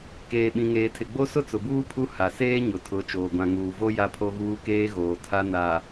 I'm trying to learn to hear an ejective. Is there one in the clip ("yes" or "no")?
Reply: no